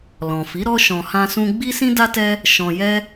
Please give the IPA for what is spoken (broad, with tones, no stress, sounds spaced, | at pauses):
l ɔ̃˨ f i˨˦ ɾ ɔ˦ ʃ ɔ̃˧ h ã˦ s ũ˦ ɡ͡b i˦ s ĩ˦ d a˦ t ɛ˦ | ʃ ɔ̃˧ j ɛ˦